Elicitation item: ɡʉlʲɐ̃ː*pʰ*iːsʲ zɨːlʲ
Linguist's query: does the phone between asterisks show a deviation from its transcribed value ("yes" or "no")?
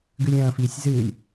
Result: yes